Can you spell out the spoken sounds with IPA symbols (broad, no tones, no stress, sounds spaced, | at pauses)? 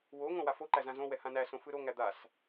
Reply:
w o ŋ õ w a f o ǃ æ z ã z õ w ɛ h ã n æ s õ f ɯ ɾ o ŋ æ d̪ a s